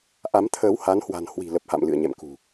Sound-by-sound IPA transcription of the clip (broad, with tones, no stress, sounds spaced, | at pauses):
ʔ a˨˦ m t̪ʰ əː˨˦ w h a˨˦ n h w a̤˨˩ n h w i̤˨˩ l ə˨˩ p̚ h a̰˧˨ m l ɨ̰˧˨ ə̯ ɲ ɛ̰˧˨ m k ṳ˨˩